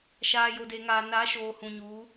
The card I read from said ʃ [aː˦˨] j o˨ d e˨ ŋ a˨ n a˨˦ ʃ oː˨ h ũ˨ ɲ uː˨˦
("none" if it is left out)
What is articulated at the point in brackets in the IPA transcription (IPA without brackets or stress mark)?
aː˨